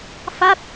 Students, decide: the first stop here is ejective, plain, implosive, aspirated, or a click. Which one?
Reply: plain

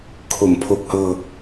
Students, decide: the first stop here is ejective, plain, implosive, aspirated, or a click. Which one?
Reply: aspirated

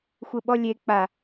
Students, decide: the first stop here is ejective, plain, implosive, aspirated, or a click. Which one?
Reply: implosive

